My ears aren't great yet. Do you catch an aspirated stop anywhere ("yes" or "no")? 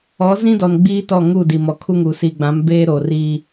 yes